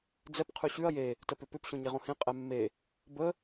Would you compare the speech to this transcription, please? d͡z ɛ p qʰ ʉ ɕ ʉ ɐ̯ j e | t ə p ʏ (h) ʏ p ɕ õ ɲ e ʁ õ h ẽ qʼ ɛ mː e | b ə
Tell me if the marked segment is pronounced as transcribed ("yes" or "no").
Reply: no